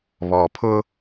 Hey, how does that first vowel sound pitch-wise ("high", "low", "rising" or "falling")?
low